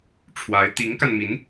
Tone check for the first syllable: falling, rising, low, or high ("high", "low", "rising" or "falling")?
rising